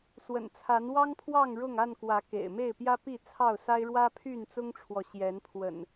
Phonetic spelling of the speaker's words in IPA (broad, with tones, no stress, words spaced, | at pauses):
swə̰˨˩nt͡sʰa˨˦nwɑ˦ŋpʰwɑ˥˨ŋ ɻʊ˥˨ŋ a˥˨nkwä˨˦ kḛ˨˩ɪ̯me˥˨ɪ̯pjä˦pi˥˨ t͡sʰɑ˥˨ʊ̯sa˦ɪ̯ɻwä˦ pʰy˥˨nt͡sʊ˦ŋʈ͡ʂʰwɔ˨ ɕjɛ˨˦n pʰwə̰˨˩n